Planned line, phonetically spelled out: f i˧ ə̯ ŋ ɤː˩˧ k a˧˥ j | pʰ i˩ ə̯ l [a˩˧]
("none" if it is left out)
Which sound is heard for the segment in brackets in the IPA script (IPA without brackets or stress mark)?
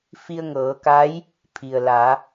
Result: a˩˧